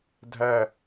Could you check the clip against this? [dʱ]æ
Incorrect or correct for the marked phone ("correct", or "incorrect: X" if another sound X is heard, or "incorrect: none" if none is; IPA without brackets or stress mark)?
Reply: correct